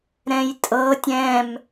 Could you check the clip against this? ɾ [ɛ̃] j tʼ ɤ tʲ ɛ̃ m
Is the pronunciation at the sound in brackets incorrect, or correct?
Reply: correct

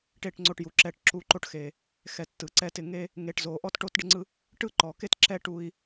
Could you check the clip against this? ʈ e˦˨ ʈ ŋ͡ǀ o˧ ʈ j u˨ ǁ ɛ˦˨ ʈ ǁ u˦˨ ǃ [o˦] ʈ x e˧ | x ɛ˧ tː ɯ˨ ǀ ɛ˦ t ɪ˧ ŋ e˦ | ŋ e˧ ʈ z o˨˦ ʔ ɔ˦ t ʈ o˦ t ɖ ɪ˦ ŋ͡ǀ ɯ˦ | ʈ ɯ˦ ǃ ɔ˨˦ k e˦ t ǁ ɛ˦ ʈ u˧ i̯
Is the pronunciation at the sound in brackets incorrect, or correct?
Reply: correct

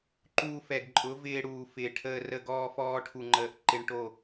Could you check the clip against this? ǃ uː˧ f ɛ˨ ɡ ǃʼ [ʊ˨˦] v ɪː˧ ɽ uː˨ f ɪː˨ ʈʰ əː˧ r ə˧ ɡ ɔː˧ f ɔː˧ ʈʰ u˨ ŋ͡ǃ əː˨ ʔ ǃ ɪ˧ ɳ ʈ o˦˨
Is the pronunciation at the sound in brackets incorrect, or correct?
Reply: correct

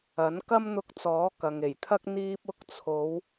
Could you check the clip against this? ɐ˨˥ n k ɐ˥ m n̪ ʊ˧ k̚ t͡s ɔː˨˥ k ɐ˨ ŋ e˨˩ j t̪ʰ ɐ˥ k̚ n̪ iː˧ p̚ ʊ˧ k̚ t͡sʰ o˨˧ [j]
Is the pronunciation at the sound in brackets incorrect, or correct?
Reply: incorrect: w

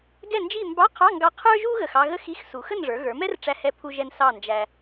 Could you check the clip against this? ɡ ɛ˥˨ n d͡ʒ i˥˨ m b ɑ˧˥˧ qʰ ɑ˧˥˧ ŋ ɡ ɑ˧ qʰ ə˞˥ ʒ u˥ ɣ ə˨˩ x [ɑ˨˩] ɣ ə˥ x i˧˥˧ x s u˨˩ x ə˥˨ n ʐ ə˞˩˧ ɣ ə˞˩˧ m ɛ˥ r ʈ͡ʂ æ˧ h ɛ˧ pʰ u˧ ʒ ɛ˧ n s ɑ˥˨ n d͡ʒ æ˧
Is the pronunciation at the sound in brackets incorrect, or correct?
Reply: incorrect: ɑ˧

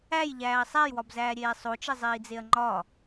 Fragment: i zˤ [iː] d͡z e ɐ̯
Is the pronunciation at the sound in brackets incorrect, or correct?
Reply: correct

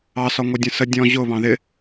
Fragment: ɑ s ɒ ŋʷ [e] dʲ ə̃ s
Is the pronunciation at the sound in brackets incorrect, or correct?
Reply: incorrect: ɛ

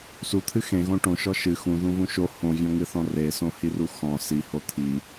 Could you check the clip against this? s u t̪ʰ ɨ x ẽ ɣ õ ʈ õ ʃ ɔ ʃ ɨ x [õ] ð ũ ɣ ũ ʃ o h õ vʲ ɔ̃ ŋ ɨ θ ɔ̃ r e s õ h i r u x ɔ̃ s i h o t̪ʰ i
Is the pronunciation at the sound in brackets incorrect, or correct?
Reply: incorrect: ũ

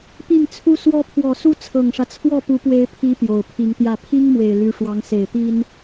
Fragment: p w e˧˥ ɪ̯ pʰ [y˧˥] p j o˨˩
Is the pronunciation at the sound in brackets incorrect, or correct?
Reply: incorrect: i˧˥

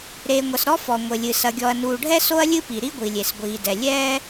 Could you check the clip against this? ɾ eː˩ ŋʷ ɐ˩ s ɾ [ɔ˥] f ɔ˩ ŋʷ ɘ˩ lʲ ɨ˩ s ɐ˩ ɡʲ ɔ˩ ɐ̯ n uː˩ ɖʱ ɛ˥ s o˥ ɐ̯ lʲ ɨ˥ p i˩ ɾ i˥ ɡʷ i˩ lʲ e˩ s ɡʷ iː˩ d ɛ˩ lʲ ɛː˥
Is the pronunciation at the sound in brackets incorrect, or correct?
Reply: correct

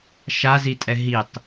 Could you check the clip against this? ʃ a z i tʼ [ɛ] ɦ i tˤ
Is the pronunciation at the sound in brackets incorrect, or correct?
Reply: correct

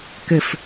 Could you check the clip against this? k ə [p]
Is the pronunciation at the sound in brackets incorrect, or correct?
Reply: incorrect: f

